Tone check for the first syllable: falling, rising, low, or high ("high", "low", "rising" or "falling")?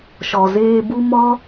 low